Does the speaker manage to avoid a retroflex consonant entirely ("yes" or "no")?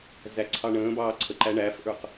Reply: no